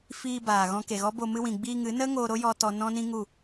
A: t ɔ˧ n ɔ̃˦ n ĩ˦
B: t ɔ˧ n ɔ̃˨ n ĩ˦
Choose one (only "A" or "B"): A